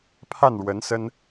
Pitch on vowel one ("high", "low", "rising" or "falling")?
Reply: falling